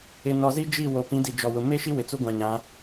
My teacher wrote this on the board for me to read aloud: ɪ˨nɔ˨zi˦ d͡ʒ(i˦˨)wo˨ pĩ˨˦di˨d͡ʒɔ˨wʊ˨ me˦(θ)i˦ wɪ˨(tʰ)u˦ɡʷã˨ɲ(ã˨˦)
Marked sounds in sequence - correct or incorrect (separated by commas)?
correct, incorrect, incorrect, correct